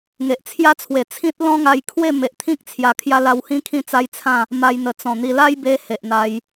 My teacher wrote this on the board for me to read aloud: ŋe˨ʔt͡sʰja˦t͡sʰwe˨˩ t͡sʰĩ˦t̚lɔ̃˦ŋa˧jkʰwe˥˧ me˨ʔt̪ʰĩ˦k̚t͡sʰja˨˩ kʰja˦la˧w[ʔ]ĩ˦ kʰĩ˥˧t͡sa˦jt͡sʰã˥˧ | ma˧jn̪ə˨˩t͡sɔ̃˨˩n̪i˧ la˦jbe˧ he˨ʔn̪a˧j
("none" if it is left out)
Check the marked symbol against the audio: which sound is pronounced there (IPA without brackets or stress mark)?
h